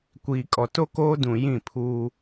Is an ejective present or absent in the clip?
present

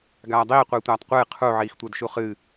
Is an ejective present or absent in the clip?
absent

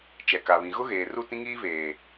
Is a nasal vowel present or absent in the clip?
present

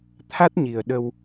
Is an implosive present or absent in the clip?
present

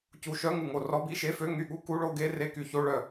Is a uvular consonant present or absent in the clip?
absent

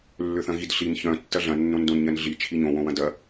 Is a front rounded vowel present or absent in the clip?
present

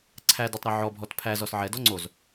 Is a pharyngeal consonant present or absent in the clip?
present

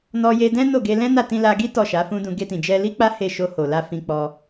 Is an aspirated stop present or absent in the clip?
absent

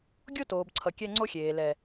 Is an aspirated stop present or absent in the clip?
present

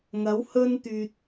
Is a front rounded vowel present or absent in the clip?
present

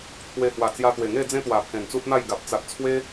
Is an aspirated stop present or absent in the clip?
present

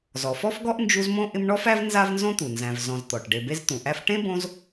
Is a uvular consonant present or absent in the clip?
absent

